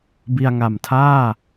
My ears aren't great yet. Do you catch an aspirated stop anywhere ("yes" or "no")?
yes